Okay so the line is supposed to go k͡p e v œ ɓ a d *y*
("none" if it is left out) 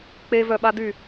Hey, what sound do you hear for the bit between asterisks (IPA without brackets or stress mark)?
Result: y